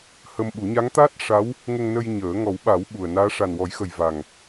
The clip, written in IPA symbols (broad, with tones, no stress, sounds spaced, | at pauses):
h ə˧ m ɓ u˨˩˦ ɲ a˧˥ ŋ t̪ aː˦˥ t̚ ʂ a˧˥ w | ŋ ə˧ ŋ n ə˧ j ɲ əː˨˩˦ ŋ ɔ˨˩˦ w ɓ a˨˩˦ w ɓ u˨˩ ə̯ n aː˧˥ ʂ a˨˩ n w ɔ˨˩˦ j x ə˨˩ j v a˨˩ ŋ